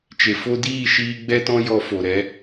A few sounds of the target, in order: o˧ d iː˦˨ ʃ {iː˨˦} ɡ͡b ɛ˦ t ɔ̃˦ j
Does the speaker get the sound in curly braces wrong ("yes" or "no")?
yes